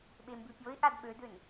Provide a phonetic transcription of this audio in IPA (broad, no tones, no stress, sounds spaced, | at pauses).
ɓ e m b ʉ pʲ o ɪ̯ ʔ a d ɓ ø d ø n